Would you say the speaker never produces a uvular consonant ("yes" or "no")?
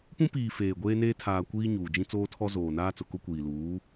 yes